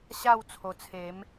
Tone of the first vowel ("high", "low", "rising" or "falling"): falling